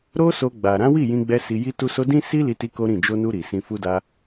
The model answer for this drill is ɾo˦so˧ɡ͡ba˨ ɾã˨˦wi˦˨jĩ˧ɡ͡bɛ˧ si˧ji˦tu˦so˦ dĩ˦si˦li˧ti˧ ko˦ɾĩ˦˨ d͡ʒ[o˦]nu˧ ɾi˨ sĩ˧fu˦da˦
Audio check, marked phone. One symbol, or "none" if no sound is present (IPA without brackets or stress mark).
o˧